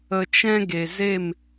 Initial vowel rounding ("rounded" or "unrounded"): unrounded